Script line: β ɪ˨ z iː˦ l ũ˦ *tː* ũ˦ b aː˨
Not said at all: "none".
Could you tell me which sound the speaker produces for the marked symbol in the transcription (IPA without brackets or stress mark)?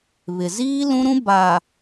ɾ